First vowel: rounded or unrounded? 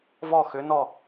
rounded